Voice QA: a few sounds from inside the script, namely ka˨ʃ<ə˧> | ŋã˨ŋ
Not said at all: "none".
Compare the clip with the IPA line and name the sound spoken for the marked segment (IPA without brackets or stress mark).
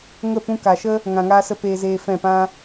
ə˦